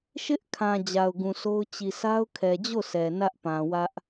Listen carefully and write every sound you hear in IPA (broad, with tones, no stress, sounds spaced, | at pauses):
ʃ ɪ˦ ʔ kʰ ã˨ d͡ʑ a˨ ʊ̯ ɡ ũ˨ s o˦ ʊ̯ t͡ɕ i˨ s a˦ ʊ̯ kʰ ɛ˨ d͡ʑ o˦˨ s ɛ˨ n ä˦ ʔ p ã˨ w ä˦ ʔ